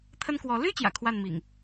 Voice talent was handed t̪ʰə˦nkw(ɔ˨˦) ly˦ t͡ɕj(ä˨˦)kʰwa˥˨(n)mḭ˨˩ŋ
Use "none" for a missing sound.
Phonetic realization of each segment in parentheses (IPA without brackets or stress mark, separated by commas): ɔ˨˦, ä̰˨˩, n